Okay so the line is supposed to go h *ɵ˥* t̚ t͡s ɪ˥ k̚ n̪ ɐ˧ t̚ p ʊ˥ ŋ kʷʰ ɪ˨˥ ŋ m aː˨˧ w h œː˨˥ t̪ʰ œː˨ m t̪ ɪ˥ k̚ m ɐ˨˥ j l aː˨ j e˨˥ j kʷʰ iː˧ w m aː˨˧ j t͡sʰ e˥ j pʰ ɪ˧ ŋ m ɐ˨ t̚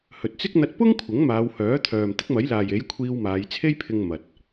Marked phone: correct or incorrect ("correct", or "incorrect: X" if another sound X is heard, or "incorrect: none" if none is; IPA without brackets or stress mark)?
incorrect: ɵ˨